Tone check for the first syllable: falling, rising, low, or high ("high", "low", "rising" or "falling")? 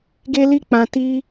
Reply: high